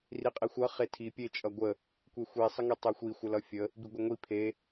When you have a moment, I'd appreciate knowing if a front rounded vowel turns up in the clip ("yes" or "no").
no